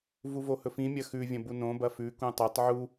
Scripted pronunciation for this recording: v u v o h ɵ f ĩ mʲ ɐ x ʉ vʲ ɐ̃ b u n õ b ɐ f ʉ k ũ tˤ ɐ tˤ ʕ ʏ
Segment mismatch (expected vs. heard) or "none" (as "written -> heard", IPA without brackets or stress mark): ʏ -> u